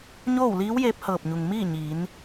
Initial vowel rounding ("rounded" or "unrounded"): rounded